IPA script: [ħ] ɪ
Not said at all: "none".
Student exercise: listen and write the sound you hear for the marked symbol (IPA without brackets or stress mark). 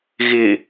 ɣ